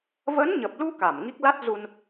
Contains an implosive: no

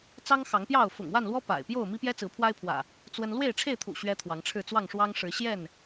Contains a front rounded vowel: no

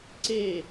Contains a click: yes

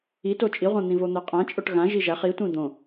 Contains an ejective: yes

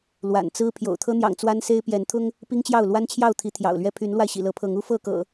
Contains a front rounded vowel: yes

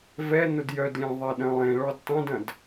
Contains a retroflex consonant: yes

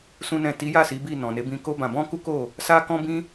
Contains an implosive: no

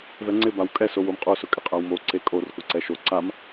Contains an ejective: yes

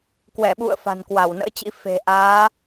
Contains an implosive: yes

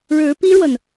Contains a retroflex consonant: yes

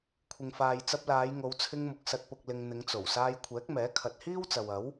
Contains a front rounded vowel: no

